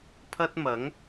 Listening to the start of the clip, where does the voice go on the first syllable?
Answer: high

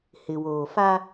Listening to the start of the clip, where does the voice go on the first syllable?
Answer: low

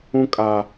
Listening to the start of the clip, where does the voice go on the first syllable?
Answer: high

